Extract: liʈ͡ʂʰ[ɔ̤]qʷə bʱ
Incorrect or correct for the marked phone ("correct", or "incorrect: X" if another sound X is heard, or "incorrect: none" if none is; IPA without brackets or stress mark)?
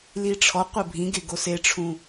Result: incorrect: ɔ